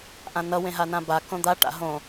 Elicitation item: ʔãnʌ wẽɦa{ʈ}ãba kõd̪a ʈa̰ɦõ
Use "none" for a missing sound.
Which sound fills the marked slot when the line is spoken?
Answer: n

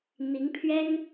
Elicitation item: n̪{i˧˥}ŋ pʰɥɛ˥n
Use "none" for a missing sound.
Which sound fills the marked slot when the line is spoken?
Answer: i˧˥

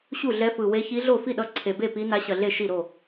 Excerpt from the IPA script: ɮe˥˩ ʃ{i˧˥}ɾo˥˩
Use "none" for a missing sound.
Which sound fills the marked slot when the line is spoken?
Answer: i˥˩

